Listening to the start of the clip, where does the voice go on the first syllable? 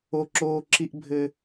high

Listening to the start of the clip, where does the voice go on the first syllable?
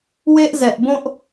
high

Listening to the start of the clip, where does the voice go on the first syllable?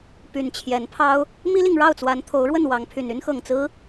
low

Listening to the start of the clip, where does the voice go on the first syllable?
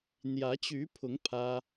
rising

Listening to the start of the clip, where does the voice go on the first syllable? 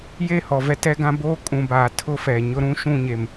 falling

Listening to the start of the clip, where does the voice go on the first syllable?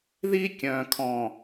high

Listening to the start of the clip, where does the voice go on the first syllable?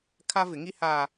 high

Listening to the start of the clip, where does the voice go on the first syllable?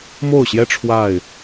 falling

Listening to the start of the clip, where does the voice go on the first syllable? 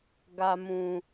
low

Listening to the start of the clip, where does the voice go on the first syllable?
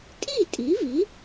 falling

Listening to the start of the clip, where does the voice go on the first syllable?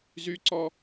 high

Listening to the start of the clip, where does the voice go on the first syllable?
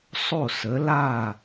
falling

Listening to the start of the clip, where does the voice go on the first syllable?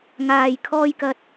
low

